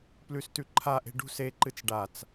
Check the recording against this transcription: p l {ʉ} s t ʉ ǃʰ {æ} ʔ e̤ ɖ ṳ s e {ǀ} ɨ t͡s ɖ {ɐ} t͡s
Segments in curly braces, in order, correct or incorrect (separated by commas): correct, incorrect, incorrect, incorrect